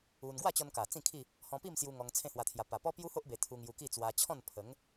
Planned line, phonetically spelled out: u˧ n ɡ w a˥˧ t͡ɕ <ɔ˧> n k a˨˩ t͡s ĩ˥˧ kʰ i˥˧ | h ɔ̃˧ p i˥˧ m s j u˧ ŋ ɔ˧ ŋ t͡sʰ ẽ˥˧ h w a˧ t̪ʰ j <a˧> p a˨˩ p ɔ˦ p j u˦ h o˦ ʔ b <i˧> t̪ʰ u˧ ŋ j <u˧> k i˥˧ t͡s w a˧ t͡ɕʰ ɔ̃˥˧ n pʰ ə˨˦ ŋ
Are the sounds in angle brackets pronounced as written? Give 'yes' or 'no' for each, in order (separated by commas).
yes, yes, no, yes